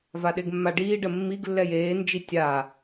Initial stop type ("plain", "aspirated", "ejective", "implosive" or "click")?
implosive